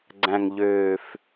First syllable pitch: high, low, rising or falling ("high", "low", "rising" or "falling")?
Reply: low